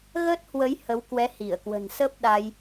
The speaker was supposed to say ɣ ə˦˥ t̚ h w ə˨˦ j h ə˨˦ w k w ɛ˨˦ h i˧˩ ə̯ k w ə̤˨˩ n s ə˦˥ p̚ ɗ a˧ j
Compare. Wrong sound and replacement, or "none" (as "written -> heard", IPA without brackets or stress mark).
none